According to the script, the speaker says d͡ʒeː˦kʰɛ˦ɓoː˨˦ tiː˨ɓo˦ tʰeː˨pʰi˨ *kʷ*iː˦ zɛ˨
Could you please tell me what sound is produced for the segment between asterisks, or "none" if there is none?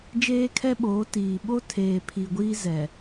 ɡʷ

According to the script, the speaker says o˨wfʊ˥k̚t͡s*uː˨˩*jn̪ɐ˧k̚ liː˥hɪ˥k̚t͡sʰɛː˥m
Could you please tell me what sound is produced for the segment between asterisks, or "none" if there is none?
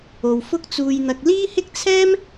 uː˧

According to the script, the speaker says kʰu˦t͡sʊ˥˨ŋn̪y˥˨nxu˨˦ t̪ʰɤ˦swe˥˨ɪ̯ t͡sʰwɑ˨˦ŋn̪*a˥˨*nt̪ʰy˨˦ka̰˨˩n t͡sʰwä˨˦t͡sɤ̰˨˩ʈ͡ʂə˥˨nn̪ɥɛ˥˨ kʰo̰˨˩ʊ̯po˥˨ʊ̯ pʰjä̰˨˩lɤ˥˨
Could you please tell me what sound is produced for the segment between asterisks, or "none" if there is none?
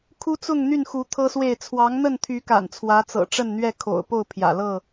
ə˥˨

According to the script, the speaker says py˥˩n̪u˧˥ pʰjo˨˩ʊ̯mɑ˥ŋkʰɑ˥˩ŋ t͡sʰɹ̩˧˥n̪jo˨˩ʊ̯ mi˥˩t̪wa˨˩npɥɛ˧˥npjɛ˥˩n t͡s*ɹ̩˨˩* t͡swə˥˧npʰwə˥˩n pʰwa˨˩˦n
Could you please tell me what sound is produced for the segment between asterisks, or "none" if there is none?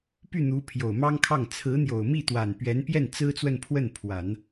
ɹ̩˥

